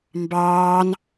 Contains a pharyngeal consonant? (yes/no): no